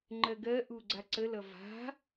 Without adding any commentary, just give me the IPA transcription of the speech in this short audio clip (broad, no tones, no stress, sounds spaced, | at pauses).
ŋ͡ǃ ɜ ɡ ɜ ʔ u ɡ͡ǀ a ǀ ə l ʌ v a̤